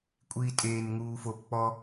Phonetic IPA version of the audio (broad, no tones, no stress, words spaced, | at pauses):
kʷʼiːtʼeːnŋuː fop k͡pɔ